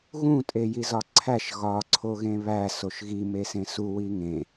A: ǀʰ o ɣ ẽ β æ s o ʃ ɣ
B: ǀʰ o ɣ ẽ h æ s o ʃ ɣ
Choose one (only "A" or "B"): A